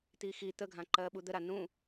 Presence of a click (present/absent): present